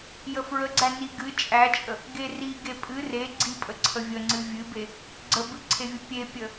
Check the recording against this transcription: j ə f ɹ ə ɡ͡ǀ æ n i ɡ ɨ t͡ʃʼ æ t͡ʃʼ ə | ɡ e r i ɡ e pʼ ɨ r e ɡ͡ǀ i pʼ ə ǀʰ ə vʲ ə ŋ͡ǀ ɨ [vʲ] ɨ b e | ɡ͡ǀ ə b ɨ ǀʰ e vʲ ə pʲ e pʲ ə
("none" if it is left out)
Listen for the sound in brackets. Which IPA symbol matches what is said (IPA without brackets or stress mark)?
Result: vʲ